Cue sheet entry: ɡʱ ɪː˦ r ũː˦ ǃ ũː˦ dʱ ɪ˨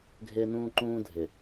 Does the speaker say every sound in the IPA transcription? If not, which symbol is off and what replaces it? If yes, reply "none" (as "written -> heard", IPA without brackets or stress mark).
r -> n